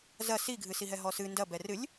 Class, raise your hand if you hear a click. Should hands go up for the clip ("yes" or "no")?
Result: no